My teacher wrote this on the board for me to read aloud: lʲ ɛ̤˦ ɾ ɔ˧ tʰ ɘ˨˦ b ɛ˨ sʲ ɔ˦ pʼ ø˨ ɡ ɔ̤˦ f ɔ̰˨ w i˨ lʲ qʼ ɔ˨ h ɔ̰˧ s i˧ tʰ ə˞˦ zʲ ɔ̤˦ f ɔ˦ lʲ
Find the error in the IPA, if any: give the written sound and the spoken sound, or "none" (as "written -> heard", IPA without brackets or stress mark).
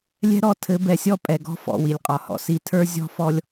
ø˨ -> ɛ˨